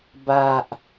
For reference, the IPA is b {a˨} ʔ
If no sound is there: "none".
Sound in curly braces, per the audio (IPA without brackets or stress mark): a˨